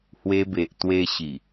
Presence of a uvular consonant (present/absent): absent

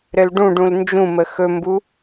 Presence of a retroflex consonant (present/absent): present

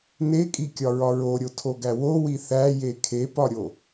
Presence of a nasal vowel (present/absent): absent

